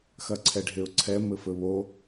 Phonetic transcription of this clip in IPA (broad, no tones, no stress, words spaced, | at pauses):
xɐǀʰɛɖʱeʊ̯ǀʰɛ mɘfɘβo